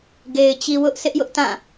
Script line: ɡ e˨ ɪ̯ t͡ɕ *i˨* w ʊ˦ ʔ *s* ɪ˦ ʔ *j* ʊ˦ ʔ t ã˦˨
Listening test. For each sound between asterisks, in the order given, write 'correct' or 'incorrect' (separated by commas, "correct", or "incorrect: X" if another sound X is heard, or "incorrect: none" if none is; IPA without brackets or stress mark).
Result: correct, correct, correct